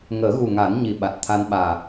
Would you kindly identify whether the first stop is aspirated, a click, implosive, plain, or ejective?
implosive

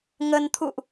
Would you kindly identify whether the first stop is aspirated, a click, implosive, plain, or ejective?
aspirated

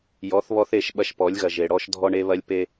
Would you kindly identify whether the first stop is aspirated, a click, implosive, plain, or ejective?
implosive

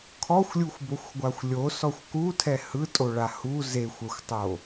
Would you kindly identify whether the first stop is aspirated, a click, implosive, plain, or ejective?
aspirated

